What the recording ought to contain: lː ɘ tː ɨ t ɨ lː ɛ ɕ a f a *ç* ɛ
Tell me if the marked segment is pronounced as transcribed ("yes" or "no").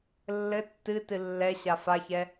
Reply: yes